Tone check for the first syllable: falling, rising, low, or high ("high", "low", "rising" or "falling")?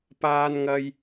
high